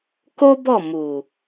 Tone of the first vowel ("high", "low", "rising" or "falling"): high